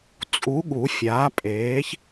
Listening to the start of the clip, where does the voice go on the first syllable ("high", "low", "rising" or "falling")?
rising